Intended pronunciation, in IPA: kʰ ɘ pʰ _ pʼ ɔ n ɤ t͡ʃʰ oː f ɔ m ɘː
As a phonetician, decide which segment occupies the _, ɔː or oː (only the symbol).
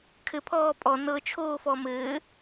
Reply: ɔː